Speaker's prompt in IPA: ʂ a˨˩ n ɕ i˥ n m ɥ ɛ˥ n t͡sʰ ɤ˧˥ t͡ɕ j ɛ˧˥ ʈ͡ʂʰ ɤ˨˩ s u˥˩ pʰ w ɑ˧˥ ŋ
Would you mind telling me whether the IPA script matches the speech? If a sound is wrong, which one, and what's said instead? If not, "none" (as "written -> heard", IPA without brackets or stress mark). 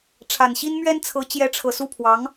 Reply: ʂ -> ʈ͡ʂʰ